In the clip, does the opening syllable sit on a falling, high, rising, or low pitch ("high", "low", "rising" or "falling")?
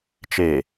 low